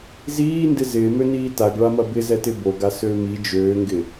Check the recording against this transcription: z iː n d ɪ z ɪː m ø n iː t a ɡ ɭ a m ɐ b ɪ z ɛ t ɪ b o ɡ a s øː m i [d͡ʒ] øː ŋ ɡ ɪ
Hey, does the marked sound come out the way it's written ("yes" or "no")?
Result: yes